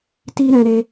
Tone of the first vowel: high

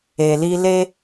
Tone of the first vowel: low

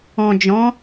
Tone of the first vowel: low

